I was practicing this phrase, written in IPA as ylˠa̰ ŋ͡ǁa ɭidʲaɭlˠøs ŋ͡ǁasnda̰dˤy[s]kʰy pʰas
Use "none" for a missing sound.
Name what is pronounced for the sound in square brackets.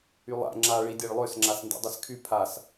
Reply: s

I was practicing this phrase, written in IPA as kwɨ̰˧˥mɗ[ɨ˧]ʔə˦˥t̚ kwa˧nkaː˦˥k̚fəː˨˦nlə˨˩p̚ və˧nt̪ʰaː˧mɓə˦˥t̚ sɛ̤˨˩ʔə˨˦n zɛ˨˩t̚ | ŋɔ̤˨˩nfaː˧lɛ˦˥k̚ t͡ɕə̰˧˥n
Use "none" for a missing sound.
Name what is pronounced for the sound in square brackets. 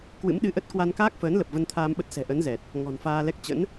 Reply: ɨ˧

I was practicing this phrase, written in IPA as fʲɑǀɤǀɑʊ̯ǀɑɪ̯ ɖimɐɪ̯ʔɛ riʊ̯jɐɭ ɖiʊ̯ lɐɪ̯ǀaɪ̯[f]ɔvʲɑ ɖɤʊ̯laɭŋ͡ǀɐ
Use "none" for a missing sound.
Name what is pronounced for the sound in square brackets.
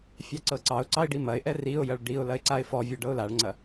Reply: f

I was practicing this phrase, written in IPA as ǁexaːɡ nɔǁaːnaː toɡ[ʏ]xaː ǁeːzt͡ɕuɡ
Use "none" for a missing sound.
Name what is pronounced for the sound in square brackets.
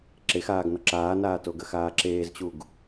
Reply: ə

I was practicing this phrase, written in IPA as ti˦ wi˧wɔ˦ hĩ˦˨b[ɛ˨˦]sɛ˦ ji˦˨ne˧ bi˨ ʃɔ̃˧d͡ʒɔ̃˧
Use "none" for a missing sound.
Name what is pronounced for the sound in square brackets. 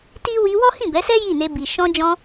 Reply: ɛ˨˦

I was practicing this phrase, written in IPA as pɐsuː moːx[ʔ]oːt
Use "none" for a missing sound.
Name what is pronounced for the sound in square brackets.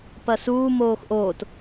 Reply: ʔ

